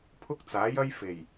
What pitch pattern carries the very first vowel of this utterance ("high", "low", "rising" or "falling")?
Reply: high